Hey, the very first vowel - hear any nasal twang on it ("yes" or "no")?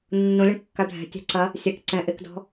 yes